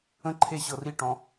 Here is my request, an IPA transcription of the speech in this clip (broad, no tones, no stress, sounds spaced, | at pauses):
ə̃ ǃʰ e ɕ ɤ r i ʈ ɔ̃